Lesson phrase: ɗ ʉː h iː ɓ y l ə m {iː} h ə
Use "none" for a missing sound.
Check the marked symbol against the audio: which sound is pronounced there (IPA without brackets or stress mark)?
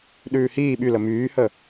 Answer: yː